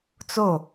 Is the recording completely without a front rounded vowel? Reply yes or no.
yes